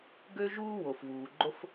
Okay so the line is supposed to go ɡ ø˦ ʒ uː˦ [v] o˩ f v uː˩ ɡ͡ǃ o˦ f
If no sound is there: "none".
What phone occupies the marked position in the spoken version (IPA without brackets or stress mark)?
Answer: w